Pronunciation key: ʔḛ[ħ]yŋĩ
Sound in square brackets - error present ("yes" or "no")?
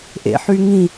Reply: no